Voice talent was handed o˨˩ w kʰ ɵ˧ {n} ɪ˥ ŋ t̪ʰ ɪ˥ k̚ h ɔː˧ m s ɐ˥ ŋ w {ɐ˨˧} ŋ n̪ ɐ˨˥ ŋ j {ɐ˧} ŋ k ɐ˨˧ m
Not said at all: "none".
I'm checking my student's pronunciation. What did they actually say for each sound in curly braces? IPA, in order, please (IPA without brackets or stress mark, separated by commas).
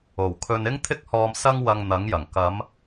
n, ɐ˧, ɐ˨˩